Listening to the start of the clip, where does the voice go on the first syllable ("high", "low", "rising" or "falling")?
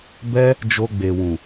high